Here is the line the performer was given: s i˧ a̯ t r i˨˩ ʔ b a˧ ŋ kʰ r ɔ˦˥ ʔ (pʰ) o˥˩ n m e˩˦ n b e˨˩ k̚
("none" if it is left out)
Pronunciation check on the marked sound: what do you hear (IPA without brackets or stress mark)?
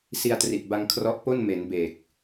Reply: p